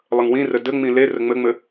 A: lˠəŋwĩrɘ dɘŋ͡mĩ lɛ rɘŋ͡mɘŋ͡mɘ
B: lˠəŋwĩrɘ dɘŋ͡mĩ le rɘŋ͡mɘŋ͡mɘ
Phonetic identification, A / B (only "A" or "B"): B